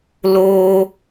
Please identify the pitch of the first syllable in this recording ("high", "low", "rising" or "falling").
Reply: high